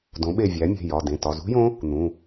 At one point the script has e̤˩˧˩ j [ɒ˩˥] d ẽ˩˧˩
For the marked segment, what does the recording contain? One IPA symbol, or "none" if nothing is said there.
ɒ˩˧˩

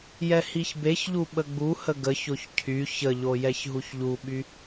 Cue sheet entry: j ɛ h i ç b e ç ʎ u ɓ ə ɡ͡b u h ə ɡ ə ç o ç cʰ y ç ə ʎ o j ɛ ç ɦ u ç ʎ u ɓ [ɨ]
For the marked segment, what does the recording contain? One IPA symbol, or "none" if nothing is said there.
y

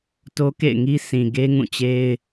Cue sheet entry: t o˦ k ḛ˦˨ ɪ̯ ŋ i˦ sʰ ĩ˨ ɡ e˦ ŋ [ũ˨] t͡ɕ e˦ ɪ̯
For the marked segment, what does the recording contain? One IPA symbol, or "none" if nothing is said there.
ũ˦˨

